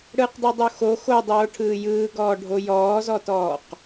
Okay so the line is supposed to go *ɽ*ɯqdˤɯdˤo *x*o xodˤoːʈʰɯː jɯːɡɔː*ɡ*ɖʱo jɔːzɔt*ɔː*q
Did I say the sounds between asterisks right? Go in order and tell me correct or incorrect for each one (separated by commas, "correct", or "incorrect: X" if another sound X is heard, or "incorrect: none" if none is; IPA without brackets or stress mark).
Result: correct, correct, incorrect: none, correct